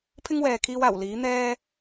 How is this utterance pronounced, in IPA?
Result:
pʰ ɪ˥ ŋ w ɛː˨ kʰ iː˧ w aː˨˩ w l iː˨˥ n̪ ɛː˥

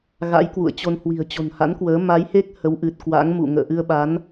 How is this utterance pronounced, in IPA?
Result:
ɣ a̰˧˥ j k w ṵ˧˨ ə̯ t͡ɕ o˧ n h w i̤˨˩ ə̯ t͡ɕ o̤˨˩ n h a̰˧˥ n k w əː˨˦ m a˨˦ j h e˦˥ k̚ h ə˨˦ w ʔ ɨ˨˩ t̚ k w a̰˧˥ ŋ m ṵ˧˨ ŋ ə̰ː˧˨ ʔ ɨ˧ ə̯ ɓ a˨˦ n

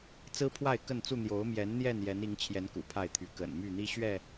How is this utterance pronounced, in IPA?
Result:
t͡s ɹ̩˦ pʰ w a˥˨ ɪ̯ k ə˥˨ n t͡s u˥˨ n̪ j o˨˦ ʊ̯ m j ɛ˨˦ n n̪ j ɛ˥˨ n j ɛ˨˦ n i˨˦ ŋ t͡ɕʰ j ɛ˨˦ n k ṵ˨˩ pʰ a˥˨ ɪ̯ t̪ʰ y˨˦ k ə̰˨˩ n m y˥˨ n̪ i˦ ɕ ɥ ɛ˥˨

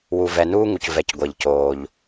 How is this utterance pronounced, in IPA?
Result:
w u˩ v ɛ˩ n uː˦ ŋ u˩ c v ɛ˩ c ɡʷ ɛ˩ ʎ c oː˩ ʎ

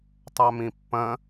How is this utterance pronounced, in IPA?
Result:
tˤ a m ĩ pː ɐ̃

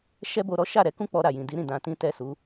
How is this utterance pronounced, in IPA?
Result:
ʃ ɛ˦ b o˧ ɾ ɔ˦ ʃ a˦˨ ɾ ɛ˧ k ũ˦ k͡p ɔ˧ ɾ a˨ j ĩ˨ d i˨˦ ɾ ĩ˦˨ d ã˧ t ĩ˦ t ɛ˦˨ s u˨˦

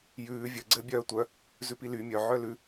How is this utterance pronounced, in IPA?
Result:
j ʉː vʲ ɘ ɡ͡ǀ ɘː bʲ œː tʷ œ | z ʉ p i l y mʲ œ ʕ œ l ʉ

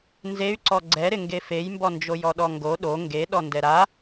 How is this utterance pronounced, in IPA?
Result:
n z e y̯ ǀ ɔ ɡ͡ǀ ɛ ɾ ɪ ŋ ɡ e f e j m b ɔ n d͡ʒ o j ɔ ɗ ɔ ŋ ɡ o ɗ o ŋ ɡ e ɗ ɔ n d ɛ ɾ a

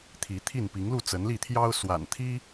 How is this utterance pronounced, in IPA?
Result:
t̪ʰ i˨˦ t̪ʰ i˥˨ n p i˨˦ ŋ l u˥˨ t͡s ə˨˦ n l i˥˨ t̪ʰ j ɑ˦ ʊ̯ s w a̰˨˩ n t̪ʰ i˦

